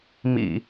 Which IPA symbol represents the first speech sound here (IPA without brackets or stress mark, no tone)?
m